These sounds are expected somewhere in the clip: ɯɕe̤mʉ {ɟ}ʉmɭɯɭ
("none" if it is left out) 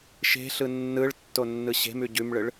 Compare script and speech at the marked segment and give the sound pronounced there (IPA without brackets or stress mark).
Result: ɟ